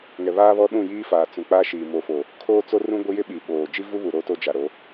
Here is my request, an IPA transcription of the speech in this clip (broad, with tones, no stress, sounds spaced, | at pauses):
ŋ ɛ˨ β aː˦ β ɔ˦ ɗ ũ˦˨ j iː˦ f aː˨ t͡s ũ˨ k͡p a˦ ʃ iː˨ m o˨ f o˨ | kʰ oː˦ t͡s o˦ r ũ˦ ɡʷ ɪ˦ j ɪ˦ ɓ i˨ ɓ oː˨ d͡ʒ i˦ v u˦ β u˨ ɾ oː˦ t o˦ d͡ʒ a˨ ɾ o˨˦